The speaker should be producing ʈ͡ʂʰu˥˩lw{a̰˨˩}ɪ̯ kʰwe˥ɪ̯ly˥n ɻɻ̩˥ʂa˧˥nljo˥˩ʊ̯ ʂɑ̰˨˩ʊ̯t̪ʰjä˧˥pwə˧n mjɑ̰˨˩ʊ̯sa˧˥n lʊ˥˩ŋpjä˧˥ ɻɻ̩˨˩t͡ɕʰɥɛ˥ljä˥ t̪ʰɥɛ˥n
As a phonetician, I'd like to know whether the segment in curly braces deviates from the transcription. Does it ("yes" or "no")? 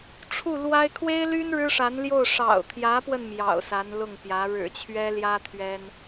yes